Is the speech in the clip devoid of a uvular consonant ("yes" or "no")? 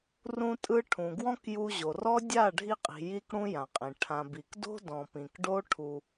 no